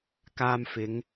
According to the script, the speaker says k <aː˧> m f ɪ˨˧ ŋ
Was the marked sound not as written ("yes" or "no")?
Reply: no